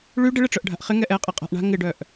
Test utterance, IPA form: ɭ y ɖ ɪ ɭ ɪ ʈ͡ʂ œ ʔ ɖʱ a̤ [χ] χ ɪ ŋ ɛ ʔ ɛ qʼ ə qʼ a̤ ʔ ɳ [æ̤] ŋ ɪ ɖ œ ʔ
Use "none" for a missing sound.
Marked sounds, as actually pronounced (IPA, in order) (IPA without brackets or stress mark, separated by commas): ʔ, a̤